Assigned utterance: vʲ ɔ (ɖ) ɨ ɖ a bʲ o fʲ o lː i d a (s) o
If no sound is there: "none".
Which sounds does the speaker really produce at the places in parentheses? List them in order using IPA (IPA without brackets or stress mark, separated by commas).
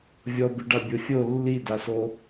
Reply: b, s